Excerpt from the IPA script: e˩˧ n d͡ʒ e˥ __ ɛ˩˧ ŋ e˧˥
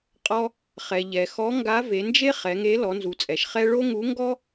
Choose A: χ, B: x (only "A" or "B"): A